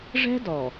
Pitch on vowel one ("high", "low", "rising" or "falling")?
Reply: high